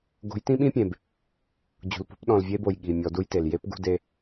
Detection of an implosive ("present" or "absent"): present